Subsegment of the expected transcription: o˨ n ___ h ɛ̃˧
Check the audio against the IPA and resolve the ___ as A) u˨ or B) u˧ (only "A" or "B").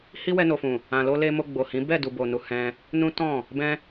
A